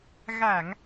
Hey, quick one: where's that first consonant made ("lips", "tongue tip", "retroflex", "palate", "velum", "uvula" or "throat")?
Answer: velum